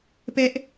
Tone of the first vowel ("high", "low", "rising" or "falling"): high